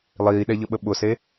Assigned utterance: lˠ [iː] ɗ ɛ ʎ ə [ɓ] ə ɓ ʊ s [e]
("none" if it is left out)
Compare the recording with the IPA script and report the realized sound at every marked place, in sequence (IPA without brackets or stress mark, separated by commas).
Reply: iː, ɓ, e